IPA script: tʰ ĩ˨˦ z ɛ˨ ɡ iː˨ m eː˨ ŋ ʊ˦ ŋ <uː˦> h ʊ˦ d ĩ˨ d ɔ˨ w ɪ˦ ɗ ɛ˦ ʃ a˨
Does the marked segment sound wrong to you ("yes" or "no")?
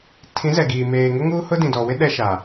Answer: no